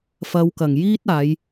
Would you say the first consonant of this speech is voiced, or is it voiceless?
voiceless